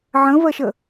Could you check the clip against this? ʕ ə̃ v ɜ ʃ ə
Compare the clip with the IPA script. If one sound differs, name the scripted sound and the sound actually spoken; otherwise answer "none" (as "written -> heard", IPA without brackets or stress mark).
none